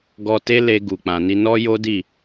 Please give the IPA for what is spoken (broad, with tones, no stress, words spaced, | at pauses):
ɡɔ˧te˦le˧ ɡu˨k͡pã˨ni˧ nɔ˦jo˦ di˦˨